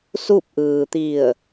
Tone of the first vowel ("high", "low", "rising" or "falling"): falling